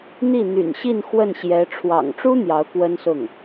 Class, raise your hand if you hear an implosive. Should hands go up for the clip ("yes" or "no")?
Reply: no